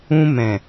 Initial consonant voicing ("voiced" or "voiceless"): voiced